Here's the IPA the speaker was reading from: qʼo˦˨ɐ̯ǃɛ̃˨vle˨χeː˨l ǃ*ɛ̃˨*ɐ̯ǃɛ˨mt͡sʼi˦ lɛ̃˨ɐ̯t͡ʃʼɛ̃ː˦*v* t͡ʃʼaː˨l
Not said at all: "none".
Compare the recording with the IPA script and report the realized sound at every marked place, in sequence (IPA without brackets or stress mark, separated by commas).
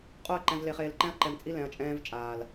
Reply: ɛ̃˦, v